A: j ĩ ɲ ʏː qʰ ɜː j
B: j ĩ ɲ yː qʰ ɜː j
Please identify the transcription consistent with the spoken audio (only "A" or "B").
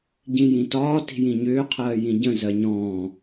A